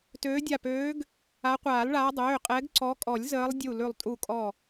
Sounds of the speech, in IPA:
t øː˨˦ dʲ a˧˩ p øː˨˦ ɡ | a˨˦ qʷ aː˨˩˦ l ɭ aː˨˦ dˤ øː˩˧˩ qʼ ɛ˨˦ ɡ ǀ ɔ˨˦ kʼ ɔ˨˩˦ lʲ z əː˨˦ lˠ dʲ u˧˩ l ʉ˧˩ lˠ tʼ u˧˩ kʼ ɔ˧˩

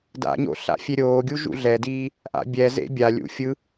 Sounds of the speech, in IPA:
d a̰ ɲ o̰ ɬ a̰ fʲ e ɾʲ oː ɡʲ u ʒ ṵ ɮ ɛ d iː | ʔ a̰ bʲ ɛ z ḛ bʲ a lʲ ṵ fʲ ɯ

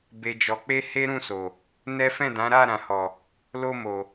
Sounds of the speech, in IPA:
b e˨ d͡ʒ ɔ˨ k͡p e˧ h e˦ ɾ ũ˦˨ s o˨ | n ɛ˦ f ɛ̃˦˨ d ã˨˦ ɾ a˦˨ ɾ ã˨ h ɔ˨ | l o˧ m o˨

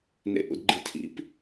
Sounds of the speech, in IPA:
n ḛ ʔ ṵ d ɡ͡ǃ i tʰ ḭ p

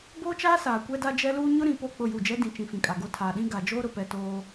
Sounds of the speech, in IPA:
b oː˦ t͡ʃ aː˦ s aː˨ kʷ ɛ˦ d a˦ d͡ʒ ɛ˦ l uː˦ ɲ ʊ˦ ɾ ĩ˨ p o˦˨ k͡p ʊ˦˨ j u˦˨ d͡ʒ ɛ˦ d ĩ˨ t͡ʃ ĩ˨ f ĩ˨ kʼ a˨ ɡ o˦ tʰ aː˨ ɗ ĩ˦ ɡ a˨ d͡ʒ oː˦ ɾ ʊ˨ p ɛ˨ t oː˦

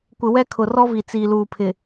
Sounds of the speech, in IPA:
kʷ ɪ˨ w ɛ˦ kʰ ʊ˨ r ɔ˦ v i˨ t͡s iː˨ l uː˨ pʰ ɪ˨

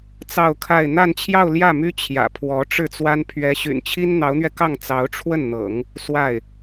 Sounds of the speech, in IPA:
t͡s ɑ˥˧ ʊ̯ kʰ a˥˧ ɪ̯ n̪ a˥˧ n t͡ɕʰ j ɑ˥˧ ʊ̯ l j ä˥˩ m y˥ t͡ɕʰ j ä̰˨˩ pʰ w ɔ˧˥ ʈ͡ʂ ɻ̩˥˩ t͡s w a˥ n pʰ ɥ ɛ˧˥ ɕ y̰˨˩ n t͡ɕʰ i˥ n n̪ ɑ˧˥ ʊ̯ n̪ ɥ ɛ˧ k ɑ˥˩ ŋ t͡s ɑ˧˥ ʊ̯ ʈ͡ʂʰ w ə˥˩ n n̪ ɤ̰˨˩˦ ŋ | s w a˥˩ ɪ̯

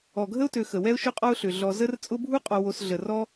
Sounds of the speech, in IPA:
ɔ˩ ɡʱ ə˥ ʊ̯ t ø˨ x ə˩ w ɛ˦ ʊ̯ ʃ ʊ˦ qʼ ɔ˦ ʊ̯ ɬ ʏ˩ ɮ ɔ˨ z ə˥ r t͡sʼ ʊ˦ bʱ u˥ qʼ ɔ˨ w o˨ s ɮ ə˩ r ɔ˥

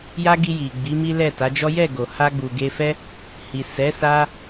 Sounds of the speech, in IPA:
j a˦ ɡ i˧ j i˨ ɡ͡b i˨˦ m i˦ l ɛ˦˨ t a˨˦ d͡ʒ ɔ˦ j ɛ˦˨ ɡ o˨ h a˧ ɡ͡b u˨ ɡ e˧ f ɛ˦ | h i˨ s ɛ˨˦ s a˧

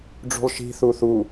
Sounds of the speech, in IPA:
ɖ͡ʐ ṳ lˠ ʃ i̤ θ u θ u

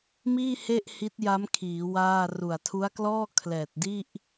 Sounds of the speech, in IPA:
m iː˥˩ h e˥˩ ʔ h i˦˥ t̚ j a˦˥ m kʰ iː˩˦ w aː˥˩ r u˨˩ a̯ tʰ u˦˥ a̯ k l ɔː˥˩ kʰ l ɛː˨˩ t̚ d i˥˩ ʔ

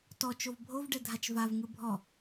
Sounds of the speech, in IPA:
t ɔ t͡ʃ o v bʱ o v ɖ ɛ dʱ a t͡ʃ v a v ŋ ɯ bʱ ɔ

